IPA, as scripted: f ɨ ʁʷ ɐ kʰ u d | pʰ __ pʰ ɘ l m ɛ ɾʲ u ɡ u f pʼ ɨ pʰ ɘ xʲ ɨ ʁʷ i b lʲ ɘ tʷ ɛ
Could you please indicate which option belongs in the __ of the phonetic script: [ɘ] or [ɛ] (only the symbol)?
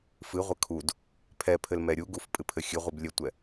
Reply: ɛ